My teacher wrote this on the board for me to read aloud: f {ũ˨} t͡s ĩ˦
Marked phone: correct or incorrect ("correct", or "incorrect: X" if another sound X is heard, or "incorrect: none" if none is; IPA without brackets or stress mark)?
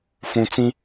correct